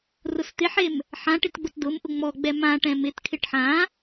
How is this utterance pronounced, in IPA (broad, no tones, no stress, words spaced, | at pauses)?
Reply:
rʊst̪ɪħem | ħã ʈɪtɡ͡bʊtdʊmʔʊ ŋ͡mɔɡ͡bɛ mãʈɛ̃ mɪtkʰɪʈ ħã